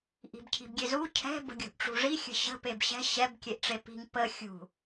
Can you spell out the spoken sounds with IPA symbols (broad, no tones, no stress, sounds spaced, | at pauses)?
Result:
ʔ i̤ b cʰ i̤ b ɡʲ e z u cʰ ɛ̤ b ə̤ ɡʲ ṳ ʔ ʈ͡ʂ ṳ ʐ i xʲ ə̤ ɕ ə̤ p e b ɕ ɛ̤ ɕ ɛ b kʲ e ʔ ʈ͡ʂ e p i̤ ŋ p ə xʲ ṳ